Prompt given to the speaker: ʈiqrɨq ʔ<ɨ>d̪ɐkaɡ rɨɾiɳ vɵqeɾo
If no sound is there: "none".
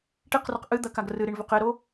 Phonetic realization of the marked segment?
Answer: ɨ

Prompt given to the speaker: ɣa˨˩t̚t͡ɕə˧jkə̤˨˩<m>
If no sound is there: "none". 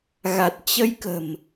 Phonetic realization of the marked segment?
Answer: m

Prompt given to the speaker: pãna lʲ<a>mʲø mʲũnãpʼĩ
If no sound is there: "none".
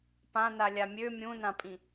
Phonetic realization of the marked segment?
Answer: a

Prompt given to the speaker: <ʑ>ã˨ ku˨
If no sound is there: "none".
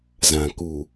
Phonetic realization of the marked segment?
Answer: z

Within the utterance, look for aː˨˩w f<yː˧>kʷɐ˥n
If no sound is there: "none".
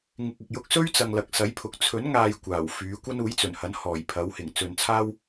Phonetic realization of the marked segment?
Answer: yː˨˥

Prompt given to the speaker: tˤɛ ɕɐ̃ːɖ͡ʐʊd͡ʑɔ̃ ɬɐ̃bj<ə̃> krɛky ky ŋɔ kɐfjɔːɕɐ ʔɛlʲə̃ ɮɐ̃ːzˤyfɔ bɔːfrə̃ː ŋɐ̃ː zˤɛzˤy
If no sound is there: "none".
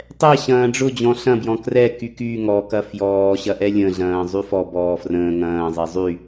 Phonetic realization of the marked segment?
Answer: ɔ̃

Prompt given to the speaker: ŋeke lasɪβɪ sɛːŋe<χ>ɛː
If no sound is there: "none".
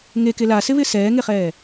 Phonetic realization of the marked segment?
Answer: χ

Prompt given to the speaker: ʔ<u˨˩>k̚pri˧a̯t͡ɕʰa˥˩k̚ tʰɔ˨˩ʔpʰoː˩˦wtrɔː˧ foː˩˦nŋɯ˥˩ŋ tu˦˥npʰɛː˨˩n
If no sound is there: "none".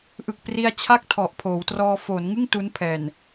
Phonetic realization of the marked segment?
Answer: ɯ˨˩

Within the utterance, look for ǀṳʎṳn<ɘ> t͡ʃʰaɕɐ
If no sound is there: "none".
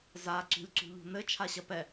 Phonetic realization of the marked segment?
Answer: ɘ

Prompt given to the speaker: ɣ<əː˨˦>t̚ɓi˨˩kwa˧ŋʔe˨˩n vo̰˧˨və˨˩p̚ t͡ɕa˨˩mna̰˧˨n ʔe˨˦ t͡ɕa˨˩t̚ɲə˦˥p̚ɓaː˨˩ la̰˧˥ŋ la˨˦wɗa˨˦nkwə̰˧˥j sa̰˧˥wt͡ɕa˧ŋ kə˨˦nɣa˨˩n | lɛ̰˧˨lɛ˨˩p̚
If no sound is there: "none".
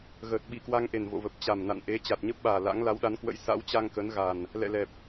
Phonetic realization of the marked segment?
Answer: əː˨˩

